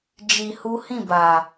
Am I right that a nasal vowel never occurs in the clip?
no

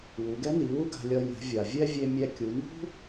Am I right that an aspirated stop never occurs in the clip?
yes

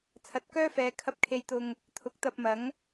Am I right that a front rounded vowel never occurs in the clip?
no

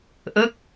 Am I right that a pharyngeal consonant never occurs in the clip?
yes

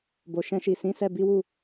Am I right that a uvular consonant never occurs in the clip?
yes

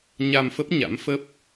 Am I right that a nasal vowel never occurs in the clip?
yes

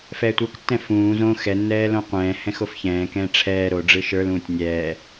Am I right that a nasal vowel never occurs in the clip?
no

